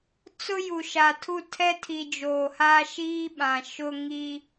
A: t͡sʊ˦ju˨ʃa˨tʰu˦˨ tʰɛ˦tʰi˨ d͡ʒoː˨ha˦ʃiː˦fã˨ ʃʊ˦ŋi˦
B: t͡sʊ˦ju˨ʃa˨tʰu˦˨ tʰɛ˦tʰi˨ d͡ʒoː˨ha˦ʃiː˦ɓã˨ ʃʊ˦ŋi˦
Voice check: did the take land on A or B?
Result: B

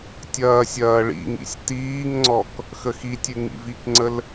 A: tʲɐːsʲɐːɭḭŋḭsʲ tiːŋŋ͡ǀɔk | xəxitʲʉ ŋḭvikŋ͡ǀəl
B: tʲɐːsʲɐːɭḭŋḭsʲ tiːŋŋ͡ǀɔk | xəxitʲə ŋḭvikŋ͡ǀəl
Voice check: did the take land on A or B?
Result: A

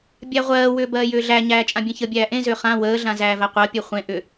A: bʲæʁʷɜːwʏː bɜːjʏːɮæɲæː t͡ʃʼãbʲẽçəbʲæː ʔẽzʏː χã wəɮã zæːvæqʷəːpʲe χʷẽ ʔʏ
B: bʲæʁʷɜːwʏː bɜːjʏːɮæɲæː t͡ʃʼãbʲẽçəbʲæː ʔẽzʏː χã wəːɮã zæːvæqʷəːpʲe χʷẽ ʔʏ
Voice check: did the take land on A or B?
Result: B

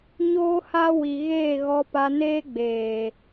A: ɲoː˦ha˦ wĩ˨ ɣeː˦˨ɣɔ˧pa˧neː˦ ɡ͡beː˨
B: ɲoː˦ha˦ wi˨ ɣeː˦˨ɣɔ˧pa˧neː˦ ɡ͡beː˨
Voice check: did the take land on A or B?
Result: B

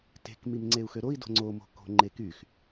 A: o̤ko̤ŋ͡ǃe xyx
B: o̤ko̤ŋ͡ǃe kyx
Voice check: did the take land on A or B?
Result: B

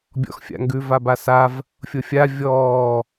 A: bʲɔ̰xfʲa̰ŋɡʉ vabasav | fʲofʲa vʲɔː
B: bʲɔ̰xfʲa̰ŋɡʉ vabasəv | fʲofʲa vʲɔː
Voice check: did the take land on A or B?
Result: A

